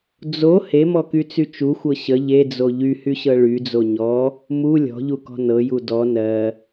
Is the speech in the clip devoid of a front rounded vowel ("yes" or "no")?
no